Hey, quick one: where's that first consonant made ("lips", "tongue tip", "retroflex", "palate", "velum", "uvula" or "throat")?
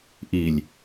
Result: throat